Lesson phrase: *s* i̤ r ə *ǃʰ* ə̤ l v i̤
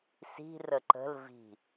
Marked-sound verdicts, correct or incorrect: correct, incorrect: ǃ

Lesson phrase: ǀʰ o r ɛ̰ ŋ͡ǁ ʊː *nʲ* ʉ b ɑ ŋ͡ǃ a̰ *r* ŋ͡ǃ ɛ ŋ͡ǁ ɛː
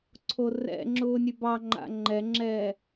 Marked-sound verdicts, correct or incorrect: correct, incorrect: none

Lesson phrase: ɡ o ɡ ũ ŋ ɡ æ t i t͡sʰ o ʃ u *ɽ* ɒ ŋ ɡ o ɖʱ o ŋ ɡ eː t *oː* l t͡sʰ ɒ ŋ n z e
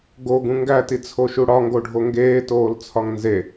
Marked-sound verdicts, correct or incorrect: correct, correct

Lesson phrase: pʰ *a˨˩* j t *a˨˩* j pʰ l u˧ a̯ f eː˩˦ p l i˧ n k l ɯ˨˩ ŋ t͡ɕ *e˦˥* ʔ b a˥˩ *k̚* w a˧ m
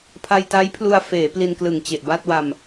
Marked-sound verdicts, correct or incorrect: incorrect: a˧, incorrect: a˦˥, incorrect: e˨˩, incorrect: t̚

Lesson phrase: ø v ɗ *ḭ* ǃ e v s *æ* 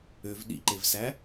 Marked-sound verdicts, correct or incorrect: correct, correct

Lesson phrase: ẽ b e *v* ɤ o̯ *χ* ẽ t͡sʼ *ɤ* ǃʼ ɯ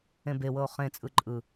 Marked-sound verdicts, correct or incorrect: incorrect: w, correct, incorrect: ɯ

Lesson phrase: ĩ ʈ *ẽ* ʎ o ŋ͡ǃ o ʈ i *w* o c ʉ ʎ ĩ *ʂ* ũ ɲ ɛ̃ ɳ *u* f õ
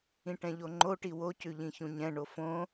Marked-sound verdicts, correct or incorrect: incorrect: ɛ̃, correct, incorrect: ç, incorrect: o

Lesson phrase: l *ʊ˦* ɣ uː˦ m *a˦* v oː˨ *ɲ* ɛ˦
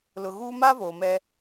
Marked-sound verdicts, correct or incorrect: incorrect: ʊ˨, correct, incorrect: m

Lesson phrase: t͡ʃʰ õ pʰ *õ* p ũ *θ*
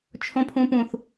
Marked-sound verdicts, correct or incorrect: incorrect: ũ, correct

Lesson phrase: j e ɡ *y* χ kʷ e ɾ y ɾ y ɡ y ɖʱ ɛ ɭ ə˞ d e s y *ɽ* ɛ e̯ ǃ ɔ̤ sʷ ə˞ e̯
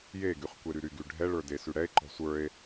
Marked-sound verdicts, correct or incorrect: correct, correct

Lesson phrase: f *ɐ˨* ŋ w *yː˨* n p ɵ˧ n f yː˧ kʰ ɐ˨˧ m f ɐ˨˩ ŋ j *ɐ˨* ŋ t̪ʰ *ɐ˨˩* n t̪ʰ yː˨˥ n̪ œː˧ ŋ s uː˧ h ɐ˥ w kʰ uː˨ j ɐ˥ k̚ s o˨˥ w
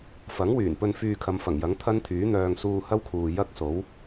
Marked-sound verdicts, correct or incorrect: incorrect: ɐ˨˥, incorrect: yː˨˩, incorrect: ɐ˨˥, incorrect: ɐ˥

